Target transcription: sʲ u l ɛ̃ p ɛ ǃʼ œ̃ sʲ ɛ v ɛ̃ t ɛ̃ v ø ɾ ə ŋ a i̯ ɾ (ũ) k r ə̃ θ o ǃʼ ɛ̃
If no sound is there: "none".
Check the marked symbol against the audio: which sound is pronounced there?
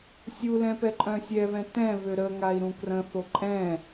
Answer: ũ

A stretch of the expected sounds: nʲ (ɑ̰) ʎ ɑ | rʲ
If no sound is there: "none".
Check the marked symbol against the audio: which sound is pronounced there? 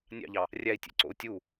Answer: ɑ̰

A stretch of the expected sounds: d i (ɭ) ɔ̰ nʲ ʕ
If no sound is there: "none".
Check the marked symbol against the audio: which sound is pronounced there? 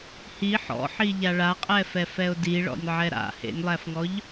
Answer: ɭ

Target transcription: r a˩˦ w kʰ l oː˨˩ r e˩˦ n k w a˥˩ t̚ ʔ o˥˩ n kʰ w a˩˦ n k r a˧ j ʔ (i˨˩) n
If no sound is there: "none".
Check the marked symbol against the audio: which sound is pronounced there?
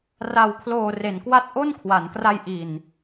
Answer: i˨˩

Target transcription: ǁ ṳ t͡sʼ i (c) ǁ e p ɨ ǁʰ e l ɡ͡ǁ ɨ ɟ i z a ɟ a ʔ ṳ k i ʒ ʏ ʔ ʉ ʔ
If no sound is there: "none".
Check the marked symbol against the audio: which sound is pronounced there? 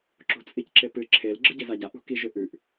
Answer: c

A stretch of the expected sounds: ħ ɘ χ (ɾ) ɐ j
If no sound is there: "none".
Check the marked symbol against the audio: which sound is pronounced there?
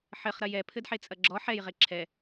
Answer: ɾ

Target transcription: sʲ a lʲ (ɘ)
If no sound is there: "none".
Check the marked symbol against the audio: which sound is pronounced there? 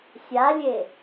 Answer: e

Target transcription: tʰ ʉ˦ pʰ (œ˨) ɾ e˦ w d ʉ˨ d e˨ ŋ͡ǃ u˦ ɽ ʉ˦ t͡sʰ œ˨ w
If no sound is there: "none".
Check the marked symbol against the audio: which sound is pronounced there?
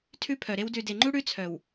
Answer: œ˨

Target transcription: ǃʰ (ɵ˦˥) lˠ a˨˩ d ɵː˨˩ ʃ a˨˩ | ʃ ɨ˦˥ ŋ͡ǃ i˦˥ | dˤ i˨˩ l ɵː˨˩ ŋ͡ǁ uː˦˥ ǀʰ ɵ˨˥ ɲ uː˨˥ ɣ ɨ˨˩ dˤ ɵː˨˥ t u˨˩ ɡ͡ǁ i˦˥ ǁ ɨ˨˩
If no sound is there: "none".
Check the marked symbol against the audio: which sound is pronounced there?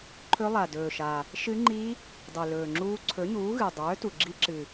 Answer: ɵ˦˥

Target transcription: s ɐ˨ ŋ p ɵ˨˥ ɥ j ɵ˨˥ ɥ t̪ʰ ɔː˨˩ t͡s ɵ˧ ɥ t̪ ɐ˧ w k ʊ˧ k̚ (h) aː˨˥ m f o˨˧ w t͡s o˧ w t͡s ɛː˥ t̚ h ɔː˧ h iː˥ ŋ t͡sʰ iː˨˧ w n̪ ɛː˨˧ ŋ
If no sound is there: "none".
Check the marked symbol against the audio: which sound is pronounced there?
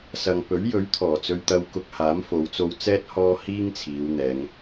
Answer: h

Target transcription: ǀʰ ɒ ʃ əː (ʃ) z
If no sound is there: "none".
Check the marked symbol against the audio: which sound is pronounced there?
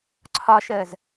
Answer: none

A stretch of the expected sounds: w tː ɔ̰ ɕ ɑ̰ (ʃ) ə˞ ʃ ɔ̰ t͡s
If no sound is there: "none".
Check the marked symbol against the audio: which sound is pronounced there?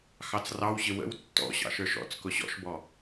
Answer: ʃ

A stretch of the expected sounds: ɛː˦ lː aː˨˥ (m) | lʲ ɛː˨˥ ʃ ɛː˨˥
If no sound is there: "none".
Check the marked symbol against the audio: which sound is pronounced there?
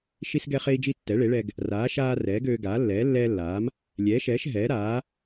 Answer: m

